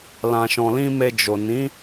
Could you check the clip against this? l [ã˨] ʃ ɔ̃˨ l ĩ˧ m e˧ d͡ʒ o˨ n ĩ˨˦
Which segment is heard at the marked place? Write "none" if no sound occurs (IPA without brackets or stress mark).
ã˨